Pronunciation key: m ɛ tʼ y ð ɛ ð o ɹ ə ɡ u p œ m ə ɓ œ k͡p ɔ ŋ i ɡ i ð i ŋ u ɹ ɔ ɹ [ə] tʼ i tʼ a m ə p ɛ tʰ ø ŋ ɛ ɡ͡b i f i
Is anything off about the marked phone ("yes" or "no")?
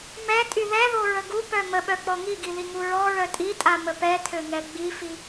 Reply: yes